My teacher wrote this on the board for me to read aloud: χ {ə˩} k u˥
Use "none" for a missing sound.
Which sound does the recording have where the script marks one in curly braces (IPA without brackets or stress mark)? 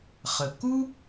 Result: ə˩